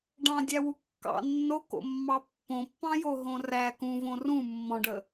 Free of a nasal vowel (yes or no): no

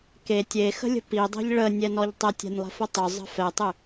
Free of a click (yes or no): yes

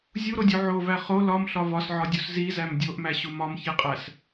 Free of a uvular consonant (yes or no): no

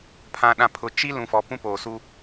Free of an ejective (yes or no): yes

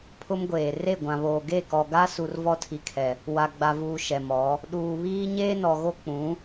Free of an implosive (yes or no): no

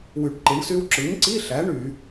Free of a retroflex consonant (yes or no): no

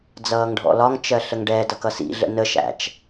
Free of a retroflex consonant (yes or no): no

